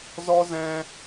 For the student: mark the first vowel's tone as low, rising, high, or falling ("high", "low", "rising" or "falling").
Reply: high